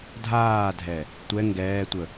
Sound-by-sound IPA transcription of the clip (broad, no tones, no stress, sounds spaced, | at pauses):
dʱ aː dʱ ɛ | tʷ ɛ ŋ ɡ ɛː tʷ ə